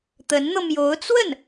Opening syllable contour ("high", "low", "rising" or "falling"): rising